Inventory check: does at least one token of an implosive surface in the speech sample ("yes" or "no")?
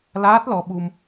yes